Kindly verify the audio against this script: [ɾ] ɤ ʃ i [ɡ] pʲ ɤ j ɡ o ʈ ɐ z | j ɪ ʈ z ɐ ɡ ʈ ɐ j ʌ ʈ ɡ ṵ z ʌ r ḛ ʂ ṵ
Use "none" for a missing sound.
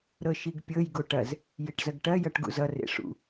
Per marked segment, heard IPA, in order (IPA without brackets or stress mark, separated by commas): ɾ, ɡ